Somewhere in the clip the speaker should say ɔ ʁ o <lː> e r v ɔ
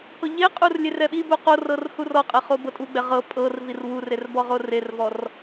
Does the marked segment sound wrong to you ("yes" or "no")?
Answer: yes